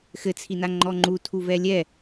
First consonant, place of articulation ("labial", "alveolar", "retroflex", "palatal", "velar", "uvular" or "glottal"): velar